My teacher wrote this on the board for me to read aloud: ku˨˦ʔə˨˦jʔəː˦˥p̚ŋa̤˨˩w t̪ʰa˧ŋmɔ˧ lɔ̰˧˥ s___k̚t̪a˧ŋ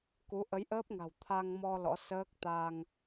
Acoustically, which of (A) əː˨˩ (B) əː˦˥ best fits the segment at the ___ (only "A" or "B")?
B